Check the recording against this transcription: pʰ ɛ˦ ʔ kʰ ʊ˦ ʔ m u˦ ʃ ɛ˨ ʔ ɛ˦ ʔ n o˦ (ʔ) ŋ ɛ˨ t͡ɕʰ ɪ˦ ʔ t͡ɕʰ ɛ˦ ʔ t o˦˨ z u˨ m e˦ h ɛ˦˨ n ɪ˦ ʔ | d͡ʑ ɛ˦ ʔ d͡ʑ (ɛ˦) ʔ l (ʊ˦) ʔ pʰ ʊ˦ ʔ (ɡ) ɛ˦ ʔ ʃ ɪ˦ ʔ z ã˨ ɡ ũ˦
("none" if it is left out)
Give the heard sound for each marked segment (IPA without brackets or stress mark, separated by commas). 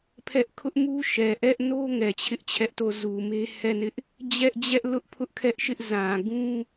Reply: none, ɛ˦, ʊ˦, kʰ